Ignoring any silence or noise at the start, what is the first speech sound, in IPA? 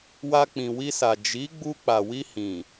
w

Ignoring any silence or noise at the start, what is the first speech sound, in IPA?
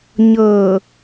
ɲ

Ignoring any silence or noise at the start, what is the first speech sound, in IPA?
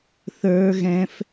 θ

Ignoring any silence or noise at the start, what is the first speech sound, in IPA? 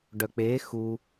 ɖ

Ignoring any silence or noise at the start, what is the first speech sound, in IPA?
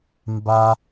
m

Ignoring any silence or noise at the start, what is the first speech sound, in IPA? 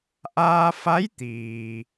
ʔ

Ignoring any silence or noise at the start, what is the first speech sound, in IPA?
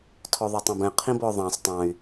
tʰ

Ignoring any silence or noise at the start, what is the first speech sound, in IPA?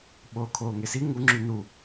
ɓ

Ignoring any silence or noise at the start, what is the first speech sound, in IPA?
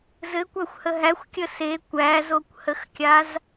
z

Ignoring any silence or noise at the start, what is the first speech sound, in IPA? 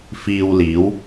f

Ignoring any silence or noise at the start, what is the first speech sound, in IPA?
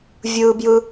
vʲ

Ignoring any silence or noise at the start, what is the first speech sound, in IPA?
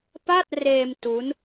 p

